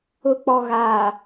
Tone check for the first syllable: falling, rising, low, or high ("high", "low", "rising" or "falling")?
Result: low